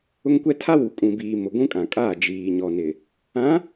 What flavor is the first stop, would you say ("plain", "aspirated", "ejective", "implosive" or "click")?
plain